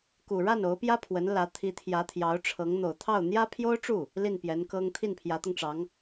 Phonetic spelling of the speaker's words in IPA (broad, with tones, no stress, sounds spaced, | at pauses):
k u˨˩ ɻ a˥˩ n o˧˥ ʊ̯ p j ä˥ pʰ w ə˧˥ n l ä˧˥ t̪ʰ i˧˥ t̪ʰ j ä˧˥ t̪ʰ j ɑ˧˥ ʊ̯ ʈ͡ʂʰ ɤ˧˥ ŋ n̪ o˨˩ ʊ̯ t̪ʰ ɑ˥˩ ʊ̯ n̪ j ä˥ pʰ j o˥ ʊ̯ ʈ͡ʂ u˥˩ | l i˥˩ n p j ɛ˧˥ n k ɤ˥ ŋ t̪ʰ i˥˩ n pʰ j ä˧˥ t̪ ʊ˧ ŋ ʈ͡ʂ ɑ˧˥ ŋ